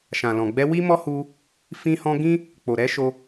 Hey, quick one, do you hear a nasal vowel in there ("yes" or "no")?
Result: yes